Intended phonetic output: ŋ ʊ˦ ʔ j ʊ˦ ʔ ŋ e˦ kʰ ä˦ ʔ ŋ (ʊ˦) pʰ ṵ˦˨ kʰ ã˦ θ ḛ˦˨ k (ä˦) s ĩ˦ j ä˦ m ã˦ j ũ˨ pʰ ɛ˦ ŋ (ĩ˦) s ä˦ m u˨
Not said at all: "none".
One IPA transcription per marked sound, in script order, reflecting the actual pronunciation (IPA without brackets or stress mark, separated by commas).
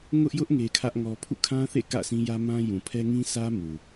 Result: ɔ˦, ä̰˦˨, ĩ˦